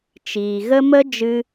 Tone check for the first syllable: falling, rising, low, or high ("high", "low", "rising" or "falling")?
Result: low